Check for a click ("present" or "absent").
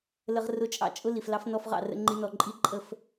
present